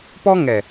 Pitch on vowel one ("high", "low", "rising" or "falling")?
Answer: high